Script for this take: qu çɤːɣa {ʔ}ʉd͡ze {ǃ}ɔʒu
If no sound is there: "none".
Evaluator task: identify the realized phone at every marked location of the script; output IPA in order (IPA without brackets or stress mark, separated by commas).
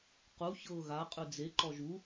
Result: qʼ, ǃ